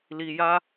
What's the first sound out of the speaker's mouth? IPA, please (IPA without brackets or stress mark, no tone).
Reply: l